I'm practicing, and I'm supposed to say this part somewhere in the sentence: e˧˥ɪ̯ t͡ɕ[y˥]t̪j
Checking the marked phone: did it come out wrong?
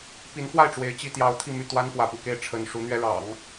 yes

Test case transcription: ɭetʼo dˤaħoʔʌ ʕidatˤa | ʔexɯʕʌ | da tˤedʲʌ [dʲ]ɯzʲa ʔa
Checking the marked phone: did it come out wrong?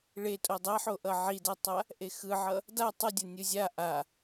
yes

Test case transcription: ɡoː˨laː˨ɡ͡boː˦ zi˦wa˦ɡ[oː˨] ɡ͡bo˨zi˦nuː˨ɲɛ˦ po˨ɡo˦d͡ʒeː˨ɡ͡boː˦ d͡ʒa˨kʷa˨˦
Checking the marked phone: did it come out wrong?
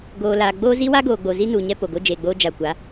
no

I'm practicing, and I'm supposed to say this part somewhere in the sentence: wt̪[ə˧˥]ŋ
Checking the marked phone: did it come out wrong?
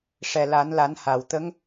no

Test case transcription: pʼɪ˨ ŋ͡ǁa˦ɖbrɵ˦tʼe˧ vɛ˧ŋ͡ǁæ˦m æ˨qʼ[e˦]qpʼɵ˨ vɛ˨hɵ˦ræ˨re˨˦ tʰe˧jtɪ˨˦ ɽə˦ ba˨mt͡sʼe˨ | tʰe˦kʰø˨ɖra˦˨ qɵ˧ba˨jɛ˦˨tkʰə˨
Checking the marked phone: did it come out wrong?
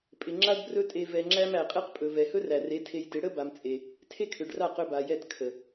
no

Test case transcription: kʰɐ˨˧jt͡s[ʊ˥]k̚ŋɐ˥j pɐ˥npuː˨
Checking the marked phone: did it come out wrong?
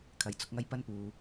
yes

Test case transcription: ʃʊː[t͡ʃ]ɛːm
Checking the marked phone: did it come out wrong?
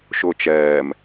no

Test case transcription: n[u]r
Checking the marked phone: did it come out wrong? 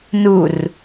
no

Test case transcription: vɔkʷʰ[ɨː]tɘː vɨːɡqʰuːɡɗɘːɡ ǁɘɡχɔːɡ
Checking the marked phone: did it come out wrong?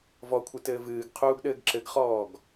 yes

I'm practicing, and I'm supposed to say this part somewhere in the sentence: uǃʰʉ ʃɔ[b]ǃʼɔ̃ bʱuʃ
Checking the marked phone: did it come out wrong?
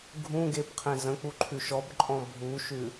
no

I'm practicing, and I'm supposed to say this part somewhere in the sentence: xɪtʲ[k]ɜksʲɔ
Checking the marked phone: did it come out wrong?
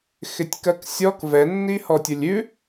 no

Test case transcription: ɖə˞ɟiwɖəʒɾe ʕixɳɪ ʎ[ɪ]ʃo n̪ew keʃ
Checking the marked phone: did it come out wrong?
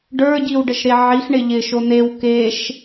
no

